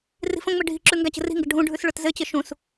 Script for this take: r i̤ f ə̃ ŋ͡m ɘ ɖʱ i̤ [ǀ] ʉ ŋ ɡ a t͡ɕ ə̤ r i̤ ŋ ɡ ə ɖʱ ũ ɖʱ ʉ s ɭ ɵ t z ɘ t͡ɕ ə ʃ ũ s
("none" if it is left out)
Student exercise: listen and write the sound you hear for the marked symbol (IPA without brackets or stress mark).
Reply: ǁ